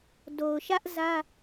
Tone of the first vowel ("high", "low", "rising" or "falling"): low